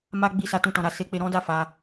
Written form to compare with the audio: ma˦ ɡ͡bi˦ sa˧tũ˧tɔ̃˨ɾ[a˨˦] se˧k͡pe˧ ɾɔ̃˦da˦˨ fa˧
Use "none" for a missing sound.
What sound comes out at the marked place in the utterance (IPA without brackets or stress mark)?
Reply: a˧